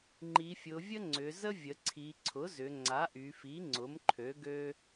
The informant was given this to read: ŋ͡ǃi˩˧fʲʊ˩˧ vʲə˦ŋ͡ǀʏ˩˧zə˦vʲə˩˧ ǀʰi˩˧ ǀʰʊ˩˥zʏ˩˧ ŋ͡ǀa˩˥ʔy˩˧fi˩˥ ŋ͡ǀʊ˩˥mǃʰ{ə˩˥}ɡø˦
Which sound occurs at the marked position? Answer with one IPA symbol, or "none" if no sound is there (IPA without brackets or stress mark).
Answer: ø˩˥